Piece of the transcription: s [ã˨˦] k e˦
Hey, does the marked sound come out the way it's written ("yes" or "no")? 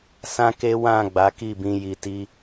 no